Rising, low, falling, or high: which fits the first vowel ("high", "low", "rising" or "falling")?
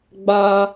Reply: high